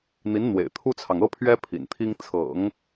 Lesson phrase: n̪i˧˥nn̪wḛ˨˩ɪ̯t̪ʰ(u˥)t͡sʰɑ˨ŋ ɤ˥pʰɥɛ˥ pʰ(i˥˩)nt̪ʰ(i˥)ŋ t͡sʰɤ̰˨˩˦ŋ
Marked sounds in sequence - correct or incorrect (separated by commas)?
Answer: correct, incorrect, correct